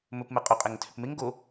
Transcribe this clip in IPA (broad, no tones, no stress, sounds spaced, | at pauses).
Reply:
m ɵ p m e qʼ ɵ qʼ e ŋ ɵ t h ʏ p m e ŋ ɡ o